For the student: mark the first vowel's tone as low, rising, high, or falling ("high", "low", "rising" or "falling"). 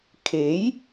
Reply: rising